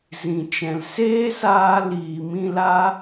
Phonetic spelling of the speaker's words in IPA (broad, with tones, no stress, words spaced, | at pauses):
zĩ˨t͡ʃɛ̃˨l seː˦saː˧ liː˨mĩ˧la˦